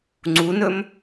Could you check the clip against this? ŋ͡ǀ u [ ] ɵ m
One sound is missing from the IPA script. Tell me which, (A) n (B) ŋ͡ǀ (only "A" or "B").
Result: A